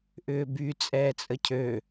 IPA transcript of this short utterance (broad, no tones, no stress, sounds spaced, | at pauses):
ʔ ʏː b y t͡sʼ ɛː t͡sʼ ə cʰ ø